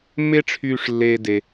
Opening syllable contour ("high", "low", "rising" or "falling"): high